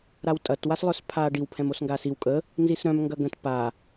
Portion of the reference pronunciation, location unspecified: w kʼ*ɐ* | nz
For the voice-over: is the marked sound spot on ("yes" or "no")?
no